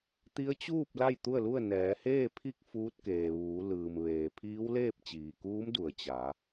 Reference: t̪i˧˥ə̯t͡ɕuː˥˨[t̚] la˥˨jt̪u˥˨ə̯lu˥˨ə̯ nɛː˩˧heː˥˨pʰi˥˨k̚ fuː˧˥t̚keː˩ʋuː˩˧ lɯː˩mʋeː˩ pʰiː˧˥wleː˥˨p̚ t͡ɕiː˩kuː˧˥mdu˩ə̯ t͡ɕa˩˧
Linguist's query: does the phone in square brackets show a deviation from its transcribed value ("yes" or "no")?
yes